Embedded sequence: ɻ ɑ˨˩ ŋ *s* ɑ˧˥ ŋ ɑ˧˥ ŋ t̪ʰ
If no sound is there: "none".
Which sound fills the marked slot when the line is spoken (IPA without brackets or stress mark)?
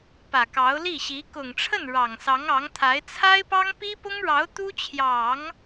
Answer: s